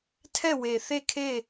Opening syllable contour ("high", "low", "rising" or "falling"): falling